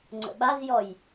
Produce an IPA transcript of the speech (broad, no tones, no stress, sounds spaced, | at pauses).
ŋ͡ǀ ə̰ ɓ a z j ɔ j